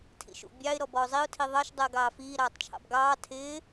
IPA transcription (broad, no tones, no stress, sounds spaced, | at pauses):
tʰ ḭ ʃ ṵ bʲ ɑ ɪ̯ ɾ ɔ b ɔ ʊ̯ zˤ i ʊ̯ tʰ i ðˤ ɑ ʃ dˤ ɜ ɡ ɑː f iː ɾ ɑː tˤ t͡ʃʰ ɑ̰ b ɡ ɑː tʰ ɪː